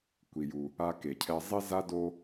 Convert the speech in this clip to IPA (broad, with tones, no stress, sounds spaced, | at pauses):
kʷ i˩ j u˩ | a˧ k e˩ cʰ ɛ˧ zˤ i˥ z a˥ d o˧